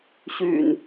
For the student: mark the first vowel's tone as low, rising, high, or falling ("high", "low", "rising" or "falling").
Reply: low